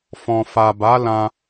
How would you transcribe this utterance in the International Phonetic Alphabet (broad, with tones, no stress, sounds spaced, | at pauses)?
f ɔ̃˨ f a˨ b a˨˦ l ã˧